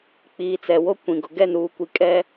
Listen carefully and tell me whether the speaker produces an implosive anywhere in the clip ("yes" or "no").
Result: no